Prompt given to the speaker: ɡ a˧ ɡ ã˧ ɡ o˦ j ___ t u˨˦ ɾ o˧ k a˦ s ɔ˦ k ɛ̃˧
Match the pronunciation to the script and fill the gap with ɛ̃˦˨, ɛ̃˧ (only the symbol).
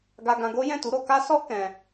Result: ɛ̃˦˨